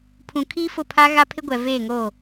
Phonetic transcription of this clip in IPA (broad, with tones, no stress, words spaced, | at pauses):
pʰũ˨kʰiː˦fʊ˦˨ pʰa˦ɣa˦pʰɪ˦ ɡʷɛ˨veː˦˨ŋo˦˨